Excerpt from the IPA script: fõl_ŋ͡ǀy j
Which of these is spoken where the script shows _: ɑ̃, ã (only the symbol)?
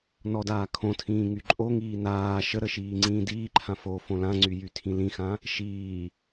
ã